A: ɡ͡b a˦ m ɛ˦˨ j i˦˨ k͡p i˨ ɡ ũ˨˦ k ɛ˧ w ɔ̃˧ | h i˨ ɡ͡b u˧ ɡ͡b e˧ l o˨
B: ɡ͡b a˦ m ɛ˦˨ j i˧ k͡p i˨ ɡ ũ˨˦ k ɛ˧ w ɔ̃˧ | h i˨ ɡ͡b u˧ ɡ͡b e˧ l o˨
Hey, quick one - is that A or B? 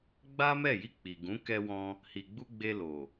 B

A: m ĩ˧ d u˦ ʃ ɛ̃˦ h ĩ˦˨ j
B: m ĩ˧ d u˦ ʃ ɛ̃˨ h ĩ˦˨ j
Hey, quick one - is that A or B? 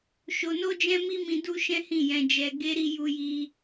A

